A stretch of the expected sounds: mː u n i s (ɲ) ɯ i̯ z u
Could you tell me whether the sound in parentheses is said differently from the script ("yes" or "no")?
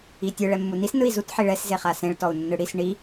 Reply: yes